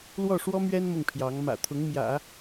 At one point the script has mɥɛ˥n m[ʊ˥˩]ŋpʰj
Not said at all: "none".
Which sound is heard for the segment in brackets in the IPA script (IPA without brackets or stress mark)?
ʊ˥˩